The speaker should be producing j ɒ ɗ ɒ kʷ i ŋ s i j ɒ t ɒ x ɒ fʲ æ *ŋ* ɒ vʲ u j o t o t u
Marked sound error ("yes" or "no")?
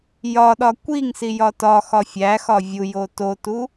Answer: yes